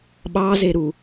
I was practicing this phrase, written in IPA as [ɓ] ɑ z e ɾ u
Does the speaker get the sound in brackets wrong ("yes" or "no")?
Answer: no